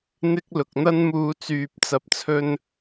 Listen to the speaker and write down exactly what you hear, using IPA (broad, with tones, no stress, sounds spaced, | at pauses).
n̪ ɪ˧ k̚ l ʊ˨ k̚ n̪ ɐ˥ n m uː˧ t͡s yː˨ p̚ t͡s ɐ˨ p̚ t͡sʰ ɵ˧ n